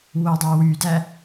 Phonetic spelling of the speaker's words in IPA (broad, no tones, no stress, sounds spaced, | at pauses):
w o dˤ æ w y d æ